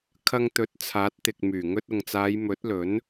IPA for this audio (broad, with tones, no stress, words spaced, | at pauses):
kʰɐ˧ŋt̪ɵ˨˥t̚ t͡sʰaː˨˥t̚t̪ɪ˨k̚myː˨˩ ŋɵ˧t̚ʊ˨ŋt͡saː˨˧j mɵ˨˥t̚lɵ˨˥n